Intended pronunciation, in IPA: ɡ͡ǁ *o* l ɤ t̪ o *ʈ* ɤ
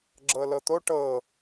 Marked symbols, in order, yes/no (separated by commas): no, yes